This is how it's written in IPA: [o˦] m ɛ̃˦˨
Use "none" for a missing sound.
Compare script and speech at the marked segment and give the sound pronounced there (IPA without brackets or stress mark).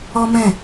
ɔ˦